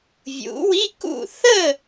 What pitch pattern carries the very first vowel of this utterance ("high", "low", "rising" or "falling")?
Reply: rising